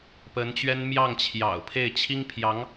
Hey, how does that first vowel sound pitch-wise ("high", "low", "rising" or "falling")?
rising